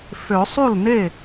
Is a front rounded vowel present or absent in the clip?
present